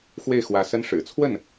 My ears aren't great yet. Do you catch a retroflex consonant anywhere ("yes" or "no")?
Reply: yes